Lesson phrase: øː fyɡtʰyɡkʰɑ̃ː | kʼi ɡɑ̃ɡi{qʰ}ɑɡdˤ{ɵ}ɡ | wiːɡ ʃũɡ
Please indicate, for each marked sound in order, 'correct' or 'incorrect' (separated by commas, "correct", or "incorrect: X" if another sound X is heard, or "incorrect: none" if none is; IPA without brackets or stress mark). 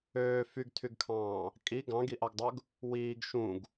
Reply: incorrect: ʔ, correct